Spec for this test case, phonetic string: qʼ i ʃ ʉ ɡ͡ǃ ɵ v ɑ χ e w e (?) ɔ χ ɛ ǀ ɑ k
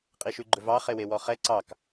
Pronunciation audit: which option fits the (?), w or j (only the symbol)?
w